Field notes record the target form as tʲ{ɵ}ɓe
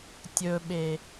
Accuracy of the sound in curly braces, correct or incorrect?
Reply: correct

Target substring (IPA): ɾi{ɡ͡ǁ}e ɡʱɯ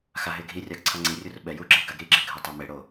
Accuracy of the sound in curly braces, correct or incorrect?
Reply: correct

